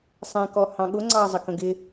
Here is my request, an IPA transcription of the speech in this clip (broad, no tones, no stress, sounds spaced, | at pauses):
sˤ ɛ̃ k ɔ h ɑ̃ ɠ ʊ ŋ͡ǀ ɑ zˤ ə k ə̃ ɡ ɪ